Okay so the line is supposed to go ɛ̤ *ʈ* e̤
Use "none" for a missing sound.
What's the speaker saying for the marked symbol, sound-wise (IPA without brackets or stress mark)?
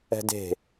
d